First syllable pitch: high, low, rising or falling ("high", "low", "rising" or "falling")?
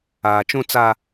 low